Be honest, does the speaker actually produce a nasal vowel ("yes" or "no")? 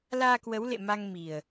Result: no